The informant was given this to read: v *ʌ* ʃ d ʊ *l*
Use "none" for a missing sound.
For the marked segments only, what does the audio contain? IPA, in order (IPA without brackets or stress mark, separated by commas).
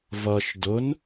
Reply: ʌ, n